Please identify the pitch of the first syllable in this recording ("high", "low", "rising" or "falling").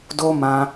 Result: high